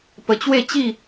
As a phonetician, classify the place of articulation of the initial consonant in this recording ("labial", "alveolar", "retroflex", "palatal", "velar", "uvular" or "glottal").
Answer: labial